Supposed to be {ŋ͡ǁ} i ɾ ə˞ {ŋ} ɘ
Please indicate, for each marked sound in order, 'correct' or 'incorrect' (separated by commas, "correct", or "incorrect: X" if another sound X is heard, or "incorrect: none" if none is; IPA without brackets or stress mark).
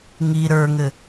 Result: incorrect: ŋ, correct